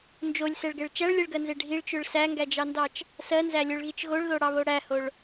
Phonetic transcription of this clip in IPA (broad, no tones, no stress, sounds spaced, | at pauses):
n d͡ʒ o lʲ s ɛ ɭ ɡ ɛ ɭ t͡ʃ æ ɭ lʲ ɛ ɭ ɡ ɜ n z e ɖʱ i ɭ t͡ʃ ø ɭ s æ ŋ ɡ æ d͡ʒ ɑ n d ɑ t͡ʃ | s ɜ n z æ lʲ o ɭ ɣ i t͡ʃ ɣ o ɭ ð o ɽ ɑ β o ɽ æ h o ɭ